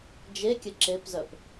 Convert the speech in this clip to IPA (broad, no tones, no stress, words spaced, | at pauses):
d͡ʒekʲə ǁepzœp